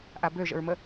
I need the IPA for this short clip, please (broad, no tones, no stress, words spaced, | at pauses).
ʔabøʒə̰ɹmə